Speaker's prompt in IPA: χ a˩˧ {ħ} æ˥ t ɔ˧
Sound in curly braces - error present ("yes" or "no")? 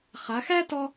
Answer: yes